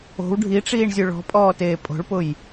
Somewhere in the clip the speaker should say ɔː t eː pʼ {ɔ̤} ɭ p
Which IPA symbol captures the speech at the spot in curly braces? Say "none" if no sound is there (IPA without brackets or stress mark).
o̤